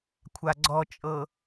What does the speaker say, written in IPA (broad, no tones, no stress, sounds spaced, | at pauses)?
kʷʰ a ɡ͡ǀ ɔ t͡ʃʼ ɤ